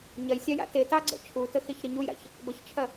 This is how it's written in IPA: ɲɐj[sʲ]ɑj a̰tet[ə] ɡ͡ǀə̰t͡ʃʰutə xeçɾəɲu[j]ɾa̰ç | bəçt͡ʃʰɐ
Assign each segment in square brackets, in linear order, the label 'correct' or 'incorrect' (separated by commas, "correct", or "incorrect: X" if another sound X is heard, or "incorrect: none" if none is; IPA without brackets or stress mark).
correct, incorrect: ɑ, correct